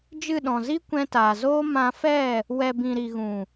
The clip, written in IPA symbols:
d͡ʒ ɨ˦˨ ɗ ɔ̃˨ z i˧ kʷ ɛ̃˧ t aː˨ z oː˦ m ã˧ f ɛ˦˨ | w ɛ˨ b ĩ˨ ɾ i˨ ɣ ũ˨

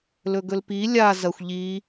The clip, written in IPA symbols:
l ɵ ɡ ɵ l p i lʲ a z ɐ xʷ ʎ i

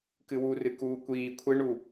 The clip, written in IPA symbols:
k ɨ w u r ɨ k uː kʷ iː kʷʰ e ɳ u

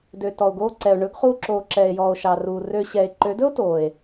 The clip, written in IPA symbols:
d ø˨ t ɔ˨ o̯ ɡ oː˧ ǀ ɛ˨ o̯ ɳ ɵ˨˦ ɡ χ uː˧ ǁ oː˨ ǁ ɛ˨ e̯ j ɔː˨ o̯ ʃ ɑ˨ r uː˨ r ø˧ ɕ ɛ˨ e̯ ǃ ø˨˦ d ɵ˦ o̯ t oː˨ e̯

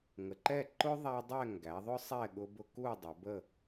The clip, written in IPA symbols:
ŋ ə˩˧ ǃ ɛ˥˨ ǃ ʊ˦ ðˤ æ˦ dˤ ɛ˥˨ ŋ ɡ æ˩˧ ðˤ ʊ˦ sˤ ɛ˥˨ ɠ ʊ˦ b ʊ˦ k u˥˨ dˤ ə˩˧ b ə˥˨

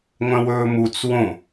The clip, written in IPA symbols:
ŋʷ œ̃ w ɵː m u t͡s w õ

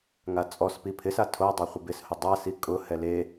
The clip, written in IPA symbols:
ŋ a t͡sʼ ɔ s p i pʰ ɪ s a tʰ o dˤ a χʷ ɪ b ɪ s h ʊ dˤ a s i kʼ ʊ h ɛ l e

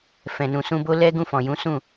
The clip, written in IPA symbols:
f ɛ̃˨ n ũ˨ s ũ˧ b o˦ l ɛ˦ ɡ ũ˦˨ f ɔ̃˨ j ũ˨˦ s ũ˦˨

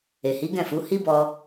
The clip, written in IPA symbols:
e˨ h i˨˦ ɡ ɛ̃˦˨ f u˨˦ h i˦ b ɔ˧

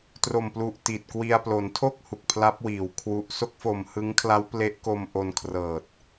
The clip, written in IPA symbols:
t r o˨˩ m p l u˨˩ ʔ t i˨˩ t̚ k w i˧ a̯ p l o˩˦ n tʰ o˥˩ k̚ h u˨˩ k̚ pʰ l a˦˥ p̚ w iː˩˦ w kʰ w u˨˩ ʔ s o˥˩ k̚ f o˨˩ m h ɯ˦˥ ŋ kʰ l a˦˥ w p l e˦˥ ʔ k o˧ m ʔ o˧ n kʰ r ɤː˨˩ t̚

